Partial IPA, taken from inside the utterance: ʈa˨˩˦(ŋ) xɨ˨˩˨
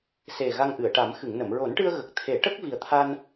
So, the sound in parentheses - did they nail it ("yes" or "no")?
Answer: no